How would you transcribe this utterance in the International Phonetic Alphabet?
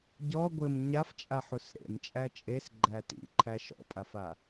ɟ ɔ ɡʷ ɘ m ɲ a f t͡ʃʼ a ħ u s ɾ ḛ m t͡ʃʼ æ t͡ʃʼ e s ɡ͡ǃ æ t ḭ ǃʰ æ ʃ ɔ̰ pʼ a f a

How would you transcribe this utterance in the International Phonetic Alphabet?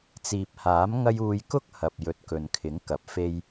t͡s iː˨ p̚ h aː˨˥ m ŋ ɐ˥ j uː˧ j k ʊ˥ k̚ h ɐ˨ p̚ j ɵ˨ t̚ k ɵ˨ n kʰ ɪ˨˥ ŋ k ɐ˨ p̚ f e˧ j

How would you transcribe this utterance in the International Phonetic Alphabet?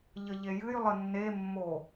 ʎ ə ʎ e j ɨ j lˠ ə nː e mː o

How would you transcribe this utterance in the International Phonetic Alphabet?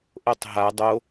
ʔ o tˤ ɦ a dˤ o

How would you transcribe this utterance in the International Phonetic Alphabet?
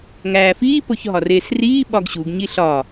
ŋ æː f iː p o ç ɦ ɒ r eː s r iː ɓ ɒ ɡ ɕ u ɡ ɲ i ɬ ɒ

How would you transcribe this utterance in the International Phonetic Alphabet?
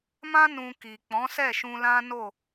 m ã˦ n ũ˧ k i˨ k͡p ɔ̃˨˦ s ɛ˦˨ ʃ ũ˧ l ã˦ n o˦˨

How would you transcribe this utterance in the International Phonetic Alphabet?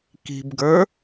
k i̤ b ɡ ə˞

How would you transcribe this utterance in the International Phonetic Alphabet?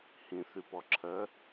h ĩ θ y p ɔ ǁʰ ɜ

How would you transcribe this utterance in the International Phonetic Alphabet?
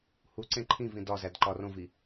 h u ǀ ẽ ǃʰ ĩ v ĩ d ɒ z æ d ǃ ɒ r õ v i

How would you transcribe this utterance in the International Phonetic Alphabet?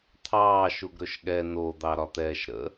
t̪ʰ ɑː ʃ u ɡ ɾ ɵ ʃ ɠ ɛ n o d̪ ɑ ɾ ɒ t̪ ɛː ʃ ɾ ə̰

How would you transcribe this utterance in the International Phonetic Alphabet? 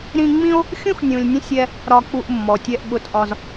ɾ ĩ˦ ŋ͡m ĩ˥ o̯ | xʲ ũ˥ x nʲ ũ˨ lʲ nʲ ə̃˥ sʲ ɛ˦ | ɾ ɒ˨ k͡p u˨ ʔ mː ɔ˩ tʲ ɛ˨ ʔ ɓ ʊ˨ t ʔ ɒ˨ z

